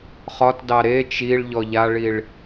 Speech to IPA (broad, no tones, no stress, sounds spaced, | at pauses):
χ ɒ t d ɑ ɾ e t͡ʃ i ɭ ʎ ɔ ʎ a ɭ i ɭ